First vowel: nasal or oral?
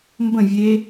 nasal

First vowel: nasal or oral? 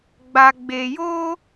oral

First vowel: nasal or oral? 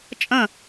nasal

